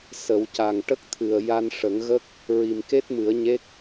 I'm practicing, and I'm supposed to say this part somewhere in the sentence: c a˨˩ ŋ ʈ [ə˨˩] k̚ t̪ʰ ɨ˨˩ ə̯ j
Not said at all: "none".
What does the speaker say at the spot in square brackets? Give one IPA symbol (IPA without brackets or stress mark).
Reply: ə˦˥